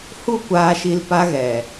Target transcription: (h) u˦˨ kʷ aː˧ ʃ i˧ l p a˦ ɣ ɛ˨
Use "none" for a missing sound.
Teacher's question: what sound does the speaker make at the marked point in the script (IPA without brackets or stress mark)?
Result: h